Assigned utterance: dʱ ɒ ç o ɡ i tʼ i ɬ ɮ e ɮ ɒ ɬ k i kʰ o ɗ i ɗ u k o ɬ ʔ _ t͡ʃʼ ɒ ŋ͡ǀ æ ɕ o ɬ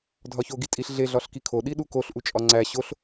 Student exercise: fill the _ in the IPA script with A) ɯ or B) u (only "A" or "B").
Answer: B